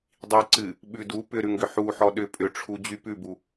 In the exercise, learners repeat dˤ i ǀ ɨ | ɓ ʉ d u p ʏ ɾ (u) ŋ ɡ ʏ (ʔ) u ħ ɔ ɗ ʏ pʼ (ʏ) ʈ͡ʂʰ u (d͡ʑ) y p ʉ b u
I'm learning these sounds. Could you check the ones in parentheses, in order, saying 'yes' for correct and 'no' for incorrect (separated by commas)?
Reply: no, no, yes, yes